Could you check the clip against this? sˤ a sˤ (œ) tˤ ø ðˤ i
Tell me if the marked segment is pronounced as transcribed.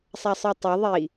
no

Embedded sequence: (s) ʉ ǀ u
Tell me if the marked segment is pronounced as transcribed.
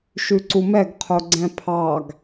no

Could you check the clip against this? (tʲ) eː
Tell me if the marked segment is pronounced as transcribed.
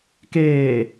no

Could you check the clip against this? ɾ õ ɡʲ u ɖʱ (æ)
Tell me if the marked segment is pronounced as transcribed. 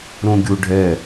no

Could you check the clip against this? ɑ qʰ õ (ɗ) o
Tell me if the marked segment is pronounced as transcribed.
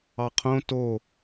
no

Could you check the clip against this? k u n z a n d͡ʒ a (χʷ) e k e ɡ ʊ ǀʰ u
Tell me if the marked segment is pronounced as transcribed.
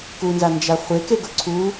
yes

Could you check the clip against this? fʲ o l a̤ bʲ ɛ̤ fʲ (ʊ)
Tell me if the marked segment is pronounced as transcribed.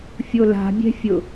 yes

